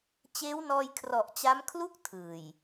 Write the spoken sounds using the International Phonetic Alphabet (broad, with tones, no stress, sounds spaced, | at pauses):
t͡ɕ eː˦˥ w n ɔː˧ j kʰ r ɔ˨˩ ʔ t͡ɕ a˦˥ m kʰ l u˦˥ k̚ tʰ ɯː˨˩ j